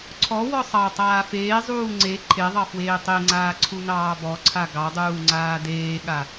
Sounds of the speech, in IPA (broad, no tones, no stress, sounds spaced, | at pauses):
ǀʰ ɔ w ɔ sˤ ɑ tˤ aː f eː zˤ uː ŋ͡ǀ e ǃʰ e ðˤ ɑ f w eː tˤ e ŋ͡ǀ aː ǀʰ u n ɑː b ɔ ǀʰ a ɡ ɑ dˤ uː ŋ͡ǀ aː d eː ɠ a